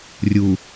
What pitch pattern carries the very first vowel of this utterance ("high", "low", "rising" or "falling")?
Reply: low